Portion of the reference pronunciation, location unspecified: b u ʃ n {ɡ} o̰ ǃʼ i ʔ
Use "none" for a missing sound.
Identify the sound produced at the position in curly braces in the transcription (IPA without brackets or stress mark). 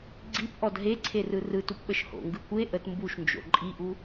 d͡ʒ